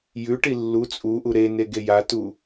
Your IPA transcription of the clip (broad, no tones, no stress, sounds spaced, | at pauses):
j ʉ ʈ i lː u t͡sʼ u ʔ u ɾ e n e ɡ e j a t u